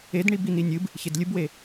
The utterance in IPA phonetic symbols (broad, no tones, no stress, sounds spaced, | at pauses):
e d ɳ i b i n i nʲ ɨ b | ç e d lʲ ɨ b w e